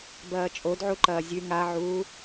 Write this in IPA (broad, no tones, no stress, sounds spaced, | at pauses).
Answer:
b ɐː t͡ʃʼ o d ʕ u ǃ ɐː zʲ ʉ ŋ a ʕ uː